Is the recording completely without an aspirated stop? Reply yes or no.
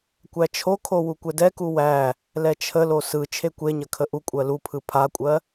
no